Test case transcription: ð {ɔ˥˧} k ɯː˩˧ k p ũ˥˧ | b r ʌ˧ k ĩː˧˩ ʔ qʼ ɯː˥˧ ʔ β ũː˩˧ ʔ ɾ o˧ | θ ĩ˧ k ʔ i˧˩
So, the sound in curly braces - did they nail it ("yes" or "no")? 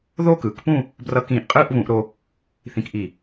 no